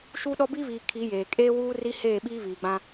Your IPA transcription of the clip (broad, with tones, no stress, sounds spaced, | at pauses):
ʃ u˦ ɗ ɔ˦ b i˦ β iː˨ kʰ i˨˦ j eː˨ kʼ eː˦ w uː˦ r i˦ h eː˦˨ ɓ iː˦ β iː˨ ɡ͡b ã˦